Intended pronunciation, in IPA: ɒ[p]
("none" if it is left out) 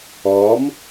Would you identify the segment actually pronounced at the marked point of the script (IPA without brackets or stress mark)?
m